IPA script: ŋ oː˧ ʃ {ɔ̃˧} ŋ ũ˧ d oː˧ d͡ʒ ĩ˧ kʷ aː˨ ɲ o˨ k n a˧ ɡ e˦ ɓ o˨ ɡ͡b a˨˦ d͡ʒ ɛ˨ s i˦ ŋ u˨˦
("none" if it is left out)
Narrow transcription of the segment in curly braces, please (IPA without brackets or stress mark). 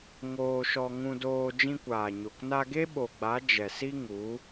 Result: ɔ˧